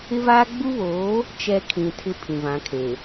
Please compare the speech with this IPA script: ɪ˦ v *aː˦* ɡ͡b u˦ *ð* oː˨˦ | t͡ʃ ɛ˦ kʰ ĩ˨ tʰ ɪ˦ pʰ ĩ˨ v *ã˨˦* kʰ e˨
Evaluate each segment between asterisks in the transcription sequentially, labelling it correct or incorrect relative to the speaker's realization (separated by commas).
correct, incorrect, correct